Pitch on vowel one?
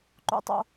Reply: high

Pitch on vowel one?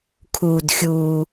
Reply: low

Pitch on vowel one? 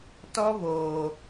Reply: high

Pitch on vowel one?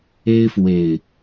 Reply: high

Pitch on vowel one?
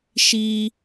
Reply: high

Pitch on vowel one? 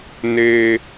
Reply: high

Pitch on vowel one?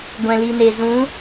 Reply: low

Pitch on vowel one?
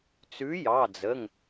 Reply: rising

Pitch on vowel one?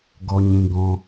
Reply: high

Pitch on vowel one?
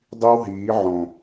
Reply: high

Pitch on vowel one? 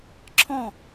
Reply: falling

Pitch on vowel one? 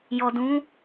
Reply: low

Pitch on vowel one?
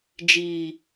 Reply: low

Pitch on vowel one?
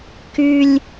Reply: high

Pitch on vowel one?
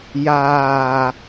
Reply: low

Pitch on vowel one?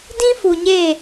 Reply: high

